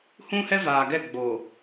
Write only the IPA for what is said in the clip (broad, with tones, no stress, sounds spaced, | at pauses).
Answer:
h ũ˦ h ɛ˦ v aː˨ ɡ ɛ˦˨ ɡ͡b oː˨